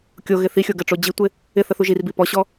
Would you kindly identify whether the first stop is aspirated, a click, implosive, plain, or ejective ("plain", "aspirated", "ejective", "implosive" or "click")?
plain